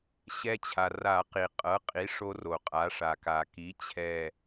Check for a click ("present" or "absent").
absent